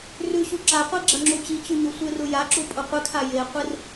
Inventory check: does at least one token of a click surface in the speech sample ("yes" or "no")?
yes